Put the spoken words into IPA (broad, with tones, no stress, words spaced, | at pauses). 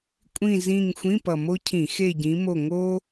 kʷʼĩ˨˩zĩ˨˩ŋ xʷĩ˧˥˧pʌ˨˩mo˥cʰĩ˧˩˧ xe˦˨ɟĩ˨˦mo˦˨ ŋo˥